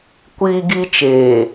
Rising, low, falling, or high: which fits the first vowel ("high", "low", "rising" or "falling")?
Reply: high